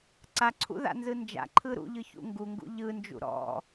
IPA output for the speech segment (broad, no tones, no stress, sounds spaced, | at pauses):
ǀ a ǀʰ ṵ ð a̰ n z ɯ n d͡ʒ a̰ ǃʰ ɯ ɾ ṵ ʎ ɯ ç ṵ ŋ ɡ u ŋ ɡ ṵ ʎ ɯ n d͡ʒ ṵ ɾ ɔ̰